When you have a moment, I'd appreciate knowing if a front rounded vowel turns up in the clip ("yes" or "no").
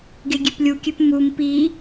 yes